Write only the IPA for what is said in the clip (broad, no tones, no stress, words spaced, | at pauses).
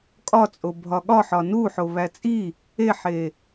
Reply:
kʼɒt͡sʼo bʱɒɠɒħɒ nu ħoβæt͡sʼi | eħe